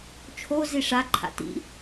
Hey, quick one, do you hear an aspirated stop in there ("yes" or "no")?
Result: yes